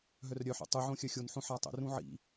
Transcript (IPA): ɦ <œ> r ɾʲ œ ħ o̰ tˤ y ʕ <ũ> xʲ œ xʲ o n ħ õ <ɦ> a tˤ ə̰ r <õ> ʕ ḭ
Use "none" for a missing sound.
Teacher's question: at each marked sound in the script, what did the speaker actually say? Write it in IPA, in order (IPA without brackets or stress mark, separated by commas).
œ, õ, ħ, ũ